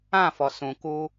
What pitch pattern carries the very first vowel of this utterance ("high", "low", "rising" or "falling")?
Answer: falling